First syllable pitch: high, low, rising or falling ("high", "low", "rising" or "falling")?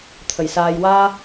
low